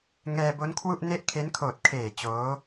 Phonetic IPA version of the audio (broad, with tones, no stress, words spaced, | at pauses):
ŋɛː˧bo˦˥n kʰwu˥˩ʔne˥˩ʔ kʰe˦˥n kʰoː˨˩t̚kʰeː˨˩ t͡ɕoː˦˥